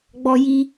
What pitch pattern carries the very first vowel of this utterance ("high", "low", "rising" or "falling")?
high